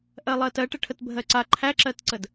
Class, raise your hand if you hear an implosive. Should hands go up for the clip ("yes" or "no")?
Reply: no